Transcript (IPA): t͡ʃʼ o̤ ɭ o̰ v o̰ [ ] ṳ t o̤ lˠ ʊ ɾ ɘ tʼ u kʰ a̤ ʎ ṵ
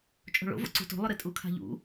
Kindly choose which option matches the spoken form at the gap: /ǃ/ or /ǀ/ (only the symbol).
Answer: ǀ